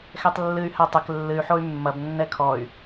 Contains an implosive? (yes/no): no